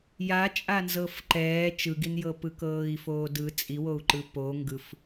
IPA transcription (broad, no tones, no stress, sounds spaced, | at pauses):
j a t͡ʃʼ a n z ɤ f ǃ ɛː t͡ʃ ɯ ɡ i n j ɤ p ɯ k ɤː i̯ f oː d ɯ t͡sʼ i w o u̯ ǃ ɯ p o ŋ ɡ ɯ f